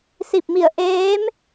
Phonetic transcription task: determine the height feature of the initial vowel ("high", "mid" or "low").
high